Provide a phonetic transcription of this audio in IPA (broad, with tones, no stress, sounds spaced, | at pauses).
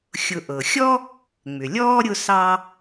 xʲ ʊ˨ ʔ ɤ˩ xʲ ɔ˥ | ŋ͡m ʏ˩ lʲ ɔː˥ ɾʲ ʊ˦ s ɑ˦